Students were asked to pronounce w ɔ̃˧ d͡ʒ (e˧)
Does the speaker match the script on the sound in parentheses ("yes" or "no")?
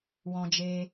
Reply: yes